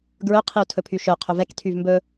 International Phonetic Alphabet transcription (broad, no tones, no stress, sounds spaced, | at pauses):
ɡ ɹ ɵ qʰ i u̯ tʰ ɵ pʰ y ʃ œ qʰ ɵ v ɛ k tʰ y v m b ɵ